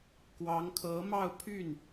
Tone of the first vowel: rising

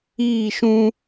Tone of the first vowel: falling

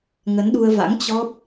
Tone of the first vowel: rising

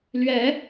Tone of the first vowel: rising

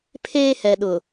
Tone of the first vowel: high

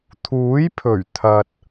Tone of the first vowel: rising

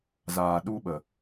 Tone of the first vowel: low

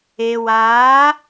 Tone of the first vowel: low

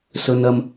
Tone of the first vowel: low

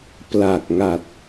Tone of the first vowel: low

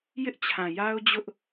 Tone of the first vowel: high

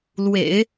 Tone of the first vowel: low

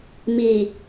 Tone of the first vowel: low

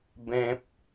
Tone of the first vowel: high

